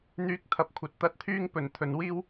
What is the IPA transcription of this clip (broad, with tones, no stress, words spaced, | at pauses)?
n̪yː˧k̚t̪ʰɐ˨p̚kʷʰɐ˨t̚ t̪ɐ˧t̚t̪ʰyː˥ŋpɵ˨˩n t̪ʰɵ˨˧n wiː˥w